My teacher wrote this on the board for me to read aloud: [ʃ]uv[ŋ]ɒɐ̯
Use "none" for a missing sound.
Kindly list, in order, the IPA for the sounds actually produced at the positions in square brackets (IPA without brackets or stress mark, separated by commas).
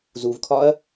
z, kʰ